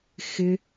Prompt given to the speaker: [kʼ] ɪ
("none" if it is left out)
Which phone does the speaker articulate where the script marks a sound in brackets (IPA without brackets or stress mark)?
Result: x